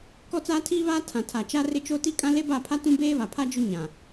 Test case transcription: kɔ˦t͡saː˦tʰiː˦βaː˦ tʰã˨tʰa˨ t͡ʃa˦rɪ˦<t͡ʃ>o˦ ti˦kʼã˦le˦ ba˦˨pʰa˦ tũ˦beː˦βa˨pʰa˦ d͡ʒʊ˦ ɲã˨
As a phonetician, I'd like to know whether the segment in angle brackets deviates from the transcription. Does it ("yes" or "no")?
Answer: no